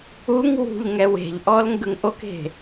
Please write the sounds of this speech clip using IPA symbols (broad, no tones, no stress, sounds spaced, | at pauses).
u ŋ w ṳ ʎ ŋ ɛ w e̤ ʎ ʔ ɔ l ŋ ɡ ɯ ŋ ʔ o k e̤